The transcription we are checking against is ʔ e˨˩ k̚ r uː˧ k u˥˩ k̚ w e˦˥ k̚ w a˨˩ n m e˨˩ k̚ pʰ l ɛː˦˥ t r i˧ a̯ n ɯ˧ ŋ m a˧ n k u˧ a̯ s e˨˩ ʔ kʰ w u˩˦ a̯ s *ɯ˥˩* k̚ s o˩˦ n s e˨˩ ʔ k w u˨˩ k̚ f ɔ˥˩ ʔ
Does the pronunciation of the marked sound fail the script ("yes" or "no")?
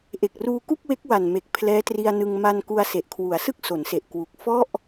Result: no